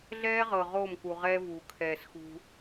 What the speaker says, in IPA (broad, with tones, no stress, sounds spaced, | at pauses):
ɮ ɛː˦ ʁ ɤ˨ ʁ oː˦˨ m k u˨ ʁ ɛː˦ v uː˨ kʰ ɛː˨ s x ṳ˦